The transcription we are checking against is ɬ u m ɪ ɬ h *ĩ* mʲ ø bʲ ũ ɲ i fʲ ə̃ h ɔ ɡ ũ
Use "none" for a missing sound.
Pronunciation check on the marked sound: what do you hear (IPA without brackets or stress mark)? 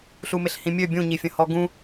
ĩ